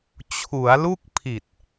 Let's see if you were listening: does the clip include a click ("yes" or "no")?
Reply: no